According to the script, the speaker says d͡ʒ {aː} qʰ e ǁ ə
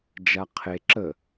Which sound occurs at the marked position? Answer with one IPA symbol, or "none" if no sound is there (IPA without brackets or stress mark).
a